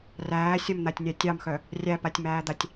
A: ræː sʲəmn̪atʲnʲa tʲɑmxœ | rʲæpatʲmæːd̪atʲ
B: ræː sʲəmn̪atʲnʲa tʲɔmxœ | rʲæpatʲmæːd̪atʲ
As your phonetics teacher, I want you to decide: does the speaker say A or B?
A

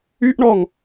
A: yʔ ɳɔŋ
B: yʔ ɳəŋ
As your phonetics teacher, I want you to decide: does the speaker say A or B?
A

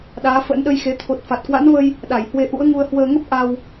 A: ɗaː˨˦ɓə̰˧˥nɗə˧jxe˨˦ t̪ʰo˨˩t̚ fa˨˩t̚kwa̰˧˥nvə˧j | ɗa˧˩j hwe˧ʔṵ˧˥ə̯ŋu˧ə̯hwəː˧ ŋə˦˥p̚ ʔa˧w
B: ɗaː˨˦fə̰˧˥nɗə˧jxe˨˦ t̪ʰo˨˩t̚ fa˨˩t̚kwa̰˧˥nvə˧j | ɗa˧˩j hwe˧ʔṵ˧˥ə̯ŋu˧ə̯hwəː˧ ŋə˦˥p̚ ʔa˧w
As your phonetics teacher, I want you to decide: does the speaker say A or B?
B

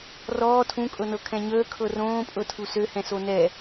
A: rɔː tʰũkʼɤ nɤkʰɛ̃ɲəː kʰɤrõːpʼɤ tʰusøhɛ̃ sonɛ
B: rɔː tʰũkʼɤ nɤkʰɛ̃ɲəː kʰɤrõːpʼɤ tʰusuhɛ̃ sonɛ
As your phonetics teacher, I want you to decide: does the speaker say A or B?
A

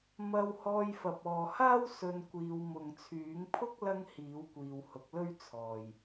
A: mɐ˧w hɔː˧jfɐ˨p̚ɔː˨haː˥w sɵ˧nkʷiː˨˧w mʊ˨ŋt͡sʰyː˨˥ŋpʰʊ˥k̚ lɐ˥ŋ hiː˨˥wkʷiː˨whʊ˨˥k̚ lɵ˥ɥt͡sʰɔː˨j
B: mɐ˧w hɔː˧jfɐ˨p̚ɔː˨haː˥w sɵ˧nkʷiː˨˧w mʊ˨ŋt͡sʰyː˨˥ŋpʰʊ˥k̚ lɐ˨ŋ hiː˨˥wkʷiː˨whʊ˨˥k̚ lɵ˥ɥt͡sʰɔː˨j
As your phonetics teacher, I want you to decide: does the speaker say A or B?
A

